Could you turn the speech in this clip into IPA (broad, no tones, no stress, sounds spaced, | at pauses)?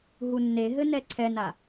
ɦ u nː e ɦ ɘ n ɛ ǀʰ ɛ n a